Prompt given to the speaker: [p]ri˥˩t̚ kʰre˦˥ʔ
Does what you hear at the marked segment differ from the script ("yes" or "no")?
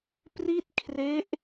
no